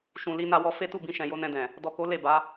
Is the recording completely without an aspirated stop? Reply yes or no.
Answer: yes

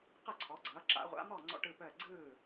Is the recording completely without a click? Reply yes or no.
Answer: no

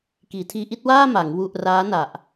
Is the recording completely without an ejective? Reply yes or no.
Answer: yes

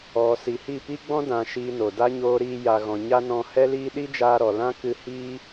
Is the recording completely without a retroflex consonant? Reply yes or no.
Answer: yes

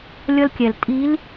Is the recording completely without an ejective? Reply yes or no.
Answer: no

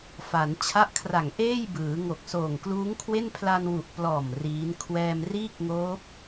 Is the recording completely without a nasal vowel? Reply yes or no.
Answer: yes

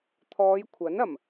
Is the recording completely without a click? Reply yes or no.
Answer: yes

